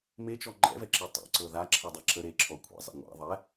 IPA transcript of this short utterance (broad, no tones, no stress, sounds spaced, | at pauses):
m e t͡ʃ ɔ ŋ͡ǃ ɛ̰ v ɛ ǁ e tˤ ɛ̰ ǀ ɤ ð a ǁʰ ə dˤ ɛ ǁʰ ə ɾ e ǁʰ ɔ kʷʰ ɛ̰ zˤ ḛ ŋʷ ɛ̰ ðˤ ɛ